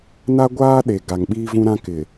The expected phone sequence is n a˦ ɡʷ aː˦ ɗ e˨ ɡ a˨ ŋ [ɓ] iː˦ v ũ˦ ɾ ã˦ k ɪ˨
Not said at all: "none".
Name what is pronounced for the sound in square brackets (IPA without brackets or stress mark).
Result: ɓ